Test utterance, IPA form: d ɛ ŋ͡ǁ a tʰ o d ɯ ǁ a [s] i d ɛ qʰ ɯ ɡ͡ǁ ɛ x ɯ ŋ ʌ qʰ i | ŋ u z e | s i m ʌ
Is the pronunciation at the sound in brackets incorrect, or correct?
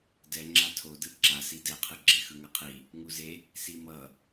correct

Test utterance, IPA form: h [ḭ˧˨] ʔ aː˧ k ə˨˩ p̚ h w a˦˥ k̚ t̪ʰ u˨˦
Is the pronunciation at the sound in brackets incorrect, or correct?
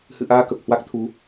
incorrect: ɨ̰˧˨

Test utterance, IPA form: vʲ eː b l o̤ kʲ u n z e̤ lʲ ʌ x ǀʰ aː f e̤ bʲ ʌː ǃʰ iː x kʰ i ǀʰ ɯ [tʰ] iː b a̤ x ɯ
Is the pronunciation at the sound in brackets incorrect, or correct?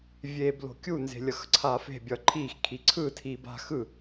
correct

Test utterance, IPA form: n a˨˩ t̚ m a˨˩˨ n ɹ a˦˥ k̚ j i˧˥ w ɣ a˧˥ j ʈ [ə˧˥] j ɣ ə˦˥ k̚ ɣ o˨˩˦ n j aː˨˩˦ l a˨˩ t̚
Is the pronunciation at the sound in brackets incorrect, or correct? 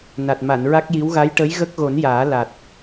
correct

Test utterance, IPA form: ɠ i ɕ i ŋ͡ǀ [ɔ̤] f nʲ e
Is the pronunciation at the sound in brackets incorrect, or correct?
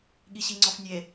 incorrect: ɔ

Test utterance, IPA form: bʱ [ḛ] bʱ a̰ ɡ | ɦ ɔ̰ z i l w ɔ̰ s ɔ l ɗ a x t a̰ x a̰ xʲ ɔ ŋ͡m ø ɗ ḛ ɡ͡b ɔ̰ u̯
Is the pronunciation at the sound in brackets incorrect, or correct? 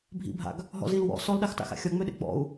incorrect: ḭ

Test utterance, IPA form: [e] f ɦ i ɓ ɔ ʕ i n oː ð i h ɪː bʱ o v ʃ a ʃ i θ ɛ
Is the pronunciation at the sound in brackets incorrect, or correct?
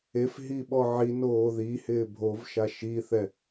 correct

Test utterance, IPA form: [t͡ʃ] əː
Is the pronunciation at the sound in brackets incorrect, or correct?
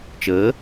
correct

